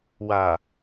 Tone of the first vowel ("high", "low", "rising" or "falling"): low